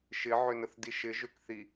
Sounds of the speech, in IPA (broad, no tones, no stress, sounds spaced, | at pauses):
ʃ ɪ ʕ ø n ə θ d i ʃ ɪ ʒ ø k θ i